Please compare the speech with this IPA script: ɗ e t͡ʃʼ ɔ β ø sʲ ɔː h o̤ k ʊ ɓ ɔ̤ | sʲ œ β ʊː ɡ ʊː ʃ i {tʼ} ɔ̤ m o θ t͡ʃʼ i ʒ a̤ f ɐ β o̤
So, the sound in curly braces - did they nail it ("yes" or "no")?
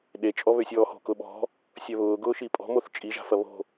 no